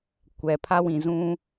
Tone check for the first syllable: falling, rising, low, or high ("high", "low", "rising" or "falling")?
low